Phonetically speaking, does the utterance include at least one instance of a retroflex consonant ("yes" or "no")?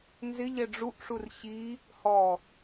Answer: yes